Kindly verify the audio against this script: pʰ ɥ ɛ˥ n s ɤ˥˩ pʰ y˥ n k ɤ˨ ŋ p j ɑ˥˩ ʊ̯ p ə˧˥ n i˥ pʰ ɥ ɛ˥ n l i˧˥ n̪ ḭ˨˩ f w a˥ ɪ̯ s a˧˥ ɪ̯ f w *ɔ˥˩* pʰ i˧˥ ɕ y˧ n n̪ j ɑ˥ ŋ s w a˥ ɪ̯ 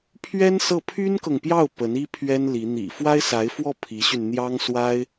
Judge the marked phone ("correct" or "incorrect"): correct